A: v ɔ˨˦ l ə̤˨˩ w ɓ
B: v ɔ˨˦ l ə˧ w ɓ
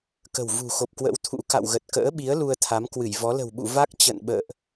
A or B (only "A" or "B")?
A